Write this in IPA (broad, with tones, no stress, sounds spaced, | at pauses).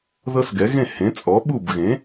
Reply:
ð ɤ˦ s ɡ ɛ˩˥ ɣ ẽ˥˩ h ẽ˩˥ t͡sʼ ɔ˩˥ ɓ u˥˩ b ɣ ẽ˩˥